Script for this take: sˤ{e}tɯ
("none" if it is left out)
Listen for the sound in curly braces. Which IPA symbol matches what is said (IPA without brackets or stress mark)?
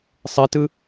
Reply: e